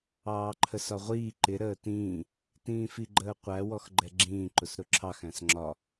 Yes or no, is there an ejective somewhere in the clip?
no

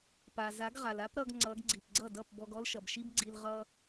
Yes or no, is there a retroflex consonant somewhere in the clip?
no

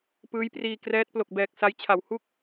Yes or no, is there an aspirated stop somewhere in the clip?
yes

